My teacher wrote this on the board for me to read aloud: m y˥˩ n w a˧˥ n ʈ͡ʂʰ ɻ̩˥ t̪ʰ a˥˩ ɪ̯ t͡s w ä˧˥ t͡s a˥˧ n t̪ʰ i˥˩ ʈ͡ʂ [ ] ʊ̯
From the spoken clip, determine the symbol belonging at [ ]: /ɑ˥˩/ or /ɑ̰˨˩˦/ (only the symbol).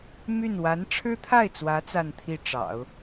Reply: ɑ̰˨˩˦